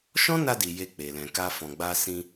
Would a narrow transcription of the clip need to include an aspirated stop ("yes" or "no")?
no